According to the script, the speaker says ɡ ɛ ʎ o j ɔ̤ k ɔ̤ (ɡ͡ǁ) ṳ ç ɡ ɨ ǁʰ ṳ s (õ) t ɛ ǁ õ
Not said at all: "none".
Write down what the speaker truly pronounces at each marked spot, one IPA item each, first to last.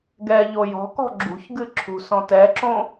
ɡ͡ǁ, ɔ̃

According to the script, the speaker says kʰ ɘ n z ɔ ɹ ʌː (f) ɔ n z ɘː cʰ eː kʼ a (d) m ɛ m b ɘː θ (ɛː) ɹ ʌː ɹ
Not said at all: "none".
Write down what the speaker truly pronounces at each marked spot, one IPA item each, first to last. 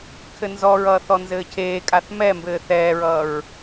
θ, θ, ɛː

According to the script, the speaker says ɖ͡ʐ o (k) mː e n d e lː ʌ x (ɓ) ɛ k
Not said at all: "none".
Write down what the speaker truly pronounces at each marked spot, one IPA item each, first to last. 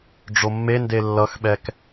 none, ɓ

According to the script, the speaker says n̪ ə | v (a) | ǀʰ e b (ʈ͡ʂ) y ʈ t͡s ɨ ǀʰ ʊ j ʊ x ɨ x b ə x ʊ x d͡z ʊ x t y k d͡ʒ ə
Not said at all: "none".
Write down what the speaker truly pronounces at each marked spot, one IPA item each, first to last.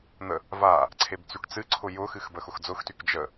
a, t͡s

